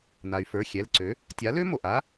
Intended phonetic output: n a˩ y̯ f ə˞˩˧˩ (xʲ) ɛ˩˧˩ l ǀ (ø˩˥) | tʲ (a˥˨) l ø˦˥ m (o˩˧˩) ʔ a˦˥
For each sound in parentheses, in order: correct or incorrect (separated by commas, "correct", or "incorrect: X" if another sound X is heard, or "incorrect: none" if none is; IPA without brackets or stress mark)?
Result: correct, correct, incorrect: a˩˥, incorrect: o˩